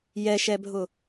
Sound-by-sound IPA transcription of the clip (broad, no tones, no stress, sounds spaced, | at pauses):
j ɛ ʃ ɛ bʱ ʊ